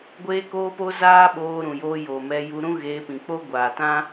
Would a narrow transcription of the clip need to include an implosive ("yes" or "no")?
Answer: yes